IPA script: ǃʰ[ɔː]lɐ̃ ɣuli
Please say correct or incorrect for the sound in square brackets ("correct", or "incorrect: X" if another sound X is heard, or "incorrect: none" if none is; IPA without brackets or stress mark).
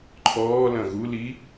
correct